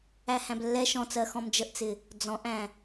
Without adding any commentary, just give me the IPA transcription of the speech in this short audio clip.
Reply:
æ h æ̃ b lː ɛ ʃ ɔ̃ t͡s ɜ x ɔ̃ m d͡ʒ ə ʔ t͡s ɪ | d͡z ɔ̃ ʔ æ̃

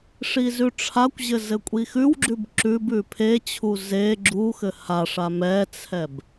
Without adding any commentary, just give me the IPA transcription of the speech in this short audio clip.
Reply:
ʂ i z ʉ ʈ͡ʂʰ a kʷ ʑ ɘ z ɘ kʷʼ i x ʉ w ɡ͡ǁ ʉ b ǁ ʉ b ʉ pʰ e t͡ɕʰ u z e ɡ͡ǁ u x ɘ h a ʂ a m ɛ t͡sʰ ɛ b

